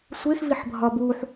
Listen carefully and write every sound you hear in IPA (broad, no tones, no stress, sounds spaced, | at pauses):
sʷ e x v i ħ bʱ ɒ b u ħ